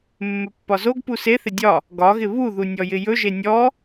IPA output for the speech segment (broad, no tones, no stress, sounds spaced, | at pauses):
mː ɵ pː ɒ z o ɡ p u s e θ ɪ dʲ ɒ | ɡ ɒ ɣ ɪ β u ð u nʲ ɔ j ɪ j ɵ ʒ e nʲ ɔ